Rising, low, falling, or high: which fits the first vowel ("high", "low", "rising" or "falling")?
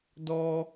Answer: high